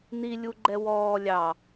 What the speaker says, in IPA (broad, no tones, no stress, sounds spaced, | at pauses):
n i lʲ u ɡ͡ǃ ɛ w ɔː lʲ ɑ